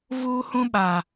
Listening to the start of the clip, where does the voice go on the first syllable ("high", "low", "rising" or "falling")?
high